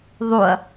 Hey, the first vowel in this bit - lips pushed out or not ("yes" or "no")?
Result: yes